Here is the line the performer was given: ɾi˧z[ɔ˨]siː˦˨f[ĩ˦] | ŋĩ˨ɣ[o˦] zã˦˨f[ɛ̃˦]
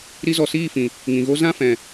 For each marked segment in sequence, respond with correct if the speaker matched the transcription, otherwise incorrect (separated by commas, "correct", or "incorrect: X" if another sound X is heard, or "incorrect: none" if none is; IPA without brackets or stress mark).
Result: correct, incorrect: ĩ˨, correct, incorrect: ɛ̃˨